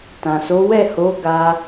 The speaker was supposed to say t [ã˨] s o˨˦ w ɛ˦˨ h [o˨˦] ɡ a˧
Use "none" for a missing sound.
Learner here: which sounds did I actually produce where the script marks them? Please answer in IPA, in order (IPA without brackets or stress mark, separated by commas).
ã˨, o˨˦